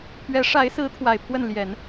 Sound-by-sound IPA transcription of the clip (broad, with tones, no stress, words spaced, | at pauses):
pʰɥɛ˧˥ʂa˧˥ɪ̯sɹ̩˧˥ t̪ʰwa˨˩ɪ̯pʰwə˥˩n ljɛ˨˩˦n